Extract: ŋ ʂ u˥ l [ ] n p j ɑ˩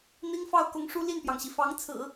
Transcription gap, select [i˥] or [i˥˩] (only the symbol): i˥˩